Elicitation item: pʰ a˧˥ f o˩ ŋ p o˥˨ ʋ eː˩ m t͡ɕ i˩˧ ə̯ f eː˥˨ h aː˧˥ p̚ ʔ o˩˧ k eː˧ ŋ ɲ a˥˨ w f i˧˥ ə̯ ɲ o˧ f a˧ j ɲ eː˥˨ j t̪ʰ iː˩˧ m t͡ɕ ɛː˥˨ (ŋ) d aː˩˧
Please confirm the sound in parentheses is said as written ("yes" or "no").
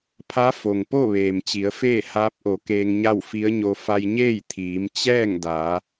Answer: yes